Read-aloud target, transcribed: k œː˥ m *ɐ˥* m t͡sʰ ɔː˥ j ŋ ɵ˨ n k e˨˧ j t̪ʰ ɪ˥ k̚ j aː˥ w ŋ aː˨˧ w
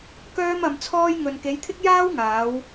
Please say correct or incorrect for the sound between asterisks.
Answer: incorrect